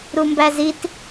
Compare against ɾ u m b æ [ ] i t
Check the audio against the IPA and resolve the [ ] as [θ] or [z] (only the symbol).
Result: z